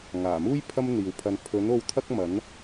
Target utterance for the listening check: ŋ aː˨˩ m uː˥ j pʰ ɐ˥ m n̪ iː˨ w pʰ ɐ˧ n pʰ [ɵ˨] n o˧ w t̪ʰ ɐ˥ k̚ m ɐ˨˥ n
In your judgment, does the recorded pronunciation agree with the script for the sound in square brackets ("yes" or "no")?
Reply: no